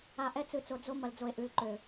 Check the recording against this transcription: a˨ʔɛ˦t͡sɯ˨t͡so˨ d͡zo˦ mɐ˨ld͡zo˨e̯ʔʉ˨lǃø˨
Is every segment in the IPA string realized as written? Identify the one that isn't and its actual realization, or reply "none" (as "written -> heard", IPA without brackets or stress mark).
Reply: none